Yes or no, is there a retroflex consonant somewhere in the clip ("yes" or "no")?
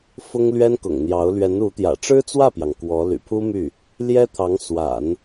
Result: yes